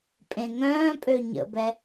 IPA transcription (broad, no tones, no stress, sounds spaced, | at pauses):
pʼ ẽ ŋ œ̃ː pʼ ø ɲ ə̰ b ɛ